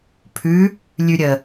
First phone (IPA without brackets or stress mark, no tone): pʰ